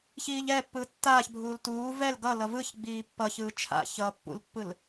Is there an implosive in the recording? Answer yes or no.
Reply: no